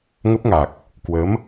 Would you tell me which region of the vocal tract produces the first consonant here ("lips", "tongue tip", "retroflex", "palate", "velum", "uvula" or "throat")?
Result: velum